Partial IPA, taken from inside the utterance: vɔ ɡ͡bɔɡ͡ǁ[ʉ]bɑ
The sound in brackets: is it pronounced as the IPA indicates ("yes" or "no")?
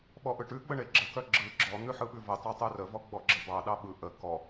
no